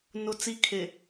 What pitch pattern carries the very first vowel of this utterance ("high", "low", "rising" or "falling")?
high